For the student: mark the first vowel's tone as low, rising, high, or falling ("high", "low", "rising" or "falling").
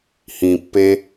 low